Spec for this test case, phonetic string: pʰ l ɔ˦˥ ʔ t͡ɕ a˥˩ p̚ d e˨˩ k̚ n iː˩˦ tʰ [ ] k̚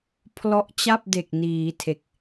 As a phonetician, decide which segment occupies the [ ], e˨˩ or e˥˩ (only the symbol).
e˨˩